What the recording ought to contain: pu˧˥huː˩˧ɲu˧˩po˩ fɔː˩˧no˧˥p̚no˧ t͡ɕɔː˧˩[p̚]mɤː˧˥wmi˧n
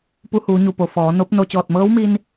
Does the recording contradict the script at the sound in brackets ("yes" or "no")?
yes